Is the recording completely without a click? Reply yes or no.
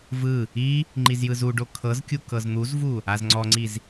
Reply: no